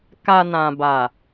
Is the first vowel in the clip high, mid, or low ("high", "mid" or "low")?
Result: low